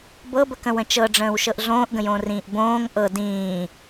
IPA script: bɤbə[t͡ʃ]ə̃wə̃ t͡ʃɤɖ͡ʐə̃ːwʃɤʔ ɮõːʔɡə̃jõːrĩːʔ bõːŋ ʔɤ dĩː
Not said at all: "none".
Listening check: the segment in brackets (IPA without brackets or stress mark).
k